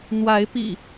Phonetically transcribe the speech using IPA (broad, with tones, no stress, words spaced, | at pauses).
n̪wa˨˦ɪ̯pḭ˨˩